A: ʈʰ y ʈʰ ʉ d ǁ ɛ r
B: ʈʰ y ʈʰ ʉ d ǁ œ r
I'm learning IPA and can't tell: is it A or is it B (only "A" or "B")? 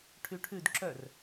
B